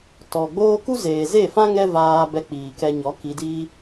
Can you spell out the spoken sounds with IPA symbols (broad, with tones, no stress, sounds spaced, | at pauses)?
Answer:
t ɔ˨ ɡ͡b oː˦ k u˦ z eː˨ z e˦˨ f ã˦ ŋ ɛ˦ v aː˧ b ɛ˧ k͡p iː˨ k ɛ˧ ɲ ɔ˨˦ k i˧ d iː˦